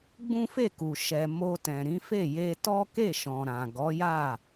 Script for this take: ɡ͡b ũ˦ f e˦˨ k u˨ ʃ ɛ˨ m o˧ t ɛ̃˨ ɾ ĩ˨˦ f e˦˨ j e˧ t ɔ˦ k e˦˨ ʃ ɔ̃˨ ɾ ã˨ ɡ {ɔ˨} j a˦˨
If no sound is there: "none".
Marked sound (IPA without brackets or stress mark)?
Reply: ɔ˨˦